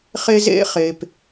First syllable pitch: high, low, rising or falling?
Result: high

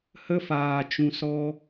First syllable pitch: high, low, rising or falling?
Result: high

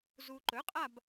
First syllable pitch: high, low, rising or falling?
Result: low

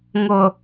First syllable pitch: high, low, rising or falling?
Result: low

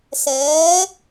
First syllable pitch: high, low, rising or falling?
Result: rising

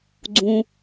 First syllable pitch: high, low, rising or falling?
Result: low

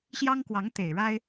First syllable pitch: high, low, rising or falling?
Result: high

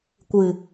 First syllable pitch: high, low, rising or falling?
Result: low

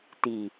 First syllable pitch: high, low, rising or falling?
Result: low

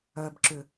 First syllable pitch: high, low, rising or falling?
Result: low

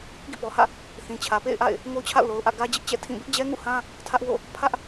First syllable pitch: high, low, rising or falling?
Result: falling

